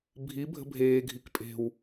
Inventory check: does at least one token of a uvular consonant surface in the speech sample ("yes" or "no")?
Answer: no